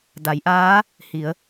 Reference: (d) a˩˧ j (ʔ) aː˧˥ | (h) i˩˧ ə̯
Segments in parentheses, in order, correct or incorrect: correct, correct, correct

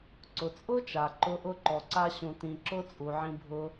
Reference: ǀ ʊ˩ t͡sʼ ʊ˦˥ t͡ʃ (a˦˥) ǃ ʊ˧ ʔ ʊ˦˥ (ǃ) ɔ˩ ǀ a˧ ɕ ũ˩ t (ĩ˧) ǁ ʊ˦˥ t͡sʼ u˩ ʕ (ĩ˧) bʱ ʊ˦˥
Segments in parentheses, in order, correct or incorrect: incorrect: a˩, correct, incorrect: ĩ˩, correct

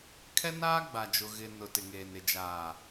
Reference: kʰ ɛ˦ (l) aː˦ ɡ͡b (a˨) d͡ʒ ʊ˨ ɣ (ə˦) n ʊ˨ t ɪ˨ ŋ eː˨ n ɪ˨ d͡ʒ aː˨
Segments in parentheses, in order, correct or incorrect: incorrect: n, correct, incorrect: ɪ˦

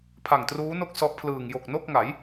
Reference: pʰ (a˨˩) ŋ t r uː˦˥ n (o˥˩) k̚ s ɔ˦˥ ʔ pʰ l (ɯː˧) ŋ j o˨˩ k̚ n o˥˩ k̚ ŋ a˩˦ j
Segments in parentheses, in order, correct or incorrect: correct, correct, incorrect: ɯː˨˩

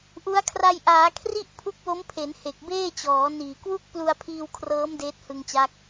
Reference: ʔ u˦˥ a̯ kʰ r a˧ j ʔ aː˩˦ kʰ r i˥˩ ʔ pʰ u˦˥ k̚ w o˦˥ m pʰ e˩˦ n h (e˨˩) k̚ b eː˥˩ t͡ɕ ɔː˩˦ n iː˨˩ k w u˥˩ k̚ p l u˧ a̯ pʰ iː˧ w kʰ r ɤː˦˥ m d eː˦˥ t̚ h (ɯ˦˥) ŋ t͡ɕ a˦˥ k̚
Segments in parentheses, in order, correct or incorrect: correct, incorrect: ɯ˧

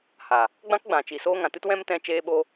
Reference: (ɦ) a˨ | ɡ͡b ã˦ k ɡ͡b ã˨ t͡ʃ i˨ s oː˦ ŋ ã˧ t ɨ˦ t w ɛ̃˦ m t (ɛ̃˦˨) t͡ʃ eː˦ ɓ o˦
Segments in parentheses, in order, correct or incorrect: incorrect: h, incorrect: ɛ̃˦

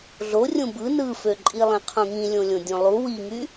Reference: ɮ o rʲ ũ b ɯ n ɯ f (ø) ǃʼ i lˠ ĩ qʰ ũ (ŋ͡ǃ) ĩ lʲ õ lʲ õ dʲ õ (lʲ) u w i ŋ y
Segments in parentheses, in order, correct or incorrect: correct, incorrect: ŋ, incorrect: lˠ

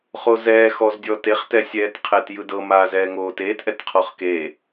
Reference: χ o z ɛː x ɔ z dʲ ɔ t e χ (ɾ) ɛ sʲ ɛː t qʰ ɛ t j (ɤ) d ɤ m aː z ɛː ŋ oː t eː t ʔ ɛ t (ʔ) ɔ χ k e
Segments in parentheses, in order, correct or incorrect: incorrect: t, incorrect: ɯ, incorrect: qʰ

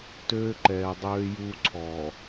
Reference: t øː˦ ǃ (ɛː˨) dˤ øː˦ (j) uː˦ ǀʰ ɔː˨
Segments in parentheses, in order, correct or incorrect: correct, correct

